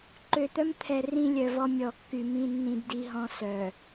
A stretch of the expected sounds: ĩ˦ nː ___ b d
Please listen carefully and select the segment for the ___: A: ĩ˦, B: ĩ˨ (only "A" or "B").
A